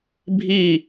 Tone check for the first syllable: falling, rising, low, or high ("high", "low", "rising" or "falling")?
falling